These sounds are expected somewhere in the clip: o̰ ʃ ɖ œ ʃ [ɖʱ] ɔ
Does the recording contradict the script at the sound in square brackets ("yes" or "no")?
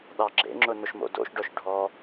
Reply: no